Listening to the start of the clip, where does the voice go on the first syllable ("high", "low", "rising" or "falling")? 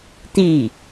falling